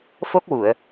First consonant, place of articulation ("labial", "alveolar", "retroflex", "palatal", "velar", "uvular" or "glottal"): labial